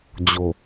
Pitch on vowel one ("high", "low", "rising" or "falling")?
low